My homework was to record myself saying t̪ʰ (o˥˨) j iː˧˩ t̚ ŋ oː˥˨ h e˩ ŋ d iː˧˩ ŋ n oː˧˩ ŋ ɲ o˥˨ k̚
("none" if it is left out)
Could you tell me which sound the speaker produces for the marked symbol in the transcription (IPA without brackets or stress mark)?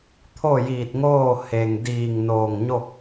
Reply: o˥˨